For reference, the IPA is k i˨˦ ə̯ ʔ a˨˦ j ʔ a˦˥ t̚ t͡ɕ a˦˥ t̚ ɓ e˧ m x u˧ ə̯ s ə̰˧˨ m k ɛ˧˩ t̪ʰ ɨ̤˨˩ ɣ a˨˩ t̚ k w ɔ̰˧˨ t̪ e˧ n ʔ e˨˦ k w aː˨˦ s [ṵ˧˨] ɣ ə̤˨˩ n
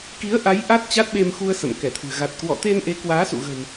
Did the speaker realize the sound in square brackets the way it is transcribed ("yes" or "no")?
yes